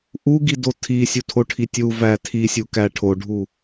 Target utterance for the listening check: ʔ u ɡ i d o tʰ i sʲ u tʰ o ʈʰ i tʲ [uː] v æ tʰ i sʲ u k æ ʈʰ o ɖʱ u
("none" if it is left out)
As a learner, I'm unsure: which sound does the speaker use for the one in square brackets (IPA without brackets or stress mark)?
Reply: u